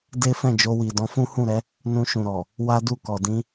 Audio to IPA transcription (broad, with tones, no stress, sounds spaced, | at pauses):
d e˦ f ɛ̃˦˨ d͡ʒ o˧ w i˨ d ɔ̃˧ f ũ˦ h ũ˦˨ ɾ ɛ˨˦ | n ũ˧ ʃ ũ˨ ɾ ɔ˨ | w a˦ d u˦˨ k ɔ˨ d ĩ˧